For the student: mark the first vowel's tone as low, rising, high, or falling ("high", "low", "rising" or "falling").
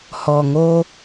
low